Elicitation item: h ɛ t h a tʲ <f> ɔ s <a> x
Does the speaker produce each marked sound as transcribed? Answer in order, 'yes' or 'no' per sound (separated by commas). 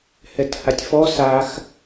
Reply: yes, yes